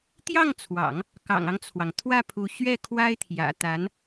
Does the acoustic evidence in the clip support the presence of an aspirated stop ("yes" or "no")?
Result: yes